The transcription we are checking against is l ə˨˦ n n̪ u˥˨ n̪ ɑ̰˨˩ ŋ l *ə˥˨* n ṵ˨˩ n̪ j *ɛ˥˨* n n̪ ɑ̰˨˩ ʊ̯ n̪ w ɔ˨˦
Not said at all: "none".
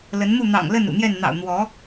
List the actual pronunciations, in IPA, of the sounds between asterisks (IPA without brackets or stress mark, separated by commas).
ə˥˨, ɛ˥˨